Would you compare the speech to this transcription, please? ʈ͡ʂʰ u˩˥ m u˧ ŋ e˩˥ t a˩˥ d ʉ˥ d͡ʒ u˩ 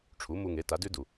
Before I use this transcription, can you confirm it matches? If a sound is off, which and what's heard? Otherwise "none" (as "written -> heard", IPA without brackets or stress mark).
d͡ʒ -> d